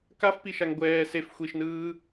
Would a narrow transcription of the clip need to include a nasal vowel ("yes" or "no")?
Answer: no